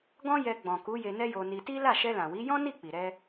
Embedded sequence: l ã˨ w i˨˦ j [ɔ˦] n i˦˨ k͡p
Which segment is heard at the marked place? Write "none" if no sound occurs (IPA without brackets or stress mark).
ɔ̃˦